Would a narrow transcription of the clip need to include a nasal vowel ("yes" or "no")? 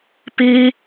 no